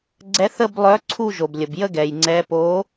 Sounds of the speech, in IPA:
ɡ͡ǀɛ˨˦θə˦˨blˠœ˨˦ ǀʰu˦˨ʒo˩blʲə˩bjə˦˨ ɡɛ˩jŋ͡ǀɛ˨˦ po˨˦

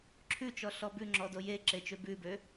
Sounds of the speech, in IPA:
ǁʰʉ t͡ʃɔɬɔbʉ ŋ͡ǁɔdoje ǁet͡ʃøbʉbø

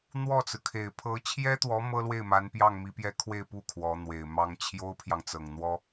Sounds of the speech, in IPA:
n̪wɔ˥˩t͡sɹ̩˩kʰe˨˩ɪ̯ pʰɤ˧˥t͡ɕʰjɛ˥t̪wɔ˧˥ mɤ˥lwe˥˩ɪ̯ma˧˥npjɑ˥˩ŋ mi˧˥pjɛ˥ kʰwe˥˧ɪ̯pu˥˩ kʰwɔ˧˥n̪we˨˩ɪ̯mɑ˥ŋ t͡ɕʰjo˥ʊ̯pʰjɑ˨ŋt͡sɤ˨˩ŋn̪wɔ˥

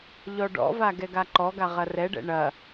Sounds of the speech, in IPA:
ʎɔɖɔ̰va ɡɛɡaǃɔɡa ʁɐrɛɖɛ̰ ɳɐ

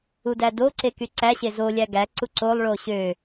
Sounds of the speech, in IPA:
udædo ǀekyǀæ ɕezo lʲæɡæ ǀuǀolˠ ɭoɕø

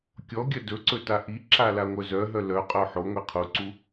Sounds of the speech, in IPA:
kʲɔ ɡʲœdɵǀɵ taʔiǁa laŋʷœzœɦœ lœqʼœ ħo ŋʷiqʰuǀu

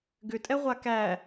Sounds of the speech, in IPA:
ɡʏtʼɛʁʷa kæ

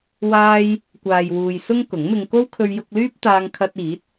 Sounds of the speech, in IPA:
waː˥j | kʷaː˨jwuː˨j sʊ˥ŋkʊ˨˥ŋmɪ˧ŋ ko˥wkʰɵ˧ɥjʊ˧k̚lyː˥p̚ t̪aː˧ŋ kʰɐ˧t̚iː˨˥t̚

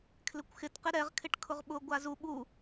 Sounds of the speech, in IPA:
kʰlɪkʷxɪt qɪɾɛʁ kʰɪʈkʰʊʁɓʊ ɡʷazu ɓu

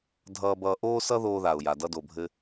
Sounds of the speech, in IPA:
dʱʌː˧bʌː˧ʔoː˥ sʌ˥ðoː˧ða˩ʊ̯ja˩ dʌ˧do˩bʱɘ˧

